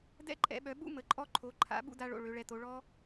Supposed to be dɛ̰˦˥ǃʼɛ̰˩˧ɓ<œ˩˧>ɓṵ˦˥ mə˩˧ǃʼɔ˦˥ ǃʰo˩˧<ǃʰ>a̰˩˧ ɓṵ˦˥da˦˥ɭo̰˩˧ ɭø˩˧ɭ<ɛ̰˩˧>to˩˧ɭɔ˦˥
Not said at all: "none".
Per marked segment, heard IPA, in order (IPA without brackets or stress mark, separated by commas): œ˩˧, ǃʰ, ɛ˩˧